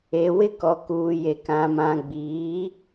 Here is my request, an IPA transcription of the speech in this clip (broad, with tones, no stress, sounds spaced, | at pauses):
e˨ w ɪ˦ k ɔ˨ k uː˨ j e˨ k ã˨ m ã˨ ɡ͡b iː˨˦